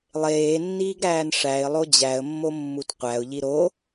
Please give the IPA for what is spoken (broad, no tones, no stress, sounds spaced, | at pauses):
lˠ eː nː iː ɡ ɾ æː n ʂ æ ɪ̯ lˠ o d͡ʑ æ ə̯ mː o mː u t qʷ æ ʊ̯ ʎ i ɾ o